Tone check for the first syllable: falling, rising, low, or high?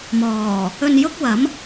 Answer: low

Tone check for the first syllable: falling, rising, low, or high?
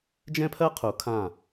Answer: high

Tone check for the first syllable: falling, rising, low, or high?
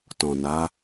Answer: low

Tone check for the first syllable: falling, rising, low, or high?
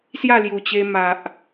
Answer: falling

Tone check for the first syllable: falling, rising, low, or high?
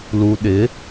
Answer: low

